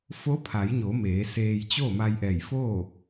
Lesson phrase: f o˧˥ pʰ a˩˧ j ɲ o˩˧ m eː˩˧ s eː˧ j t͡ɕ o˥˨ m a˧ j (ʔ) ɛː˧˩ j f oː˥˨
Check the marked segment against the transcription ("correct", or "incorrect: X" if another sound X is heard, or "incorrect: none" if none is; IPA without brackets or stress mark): correct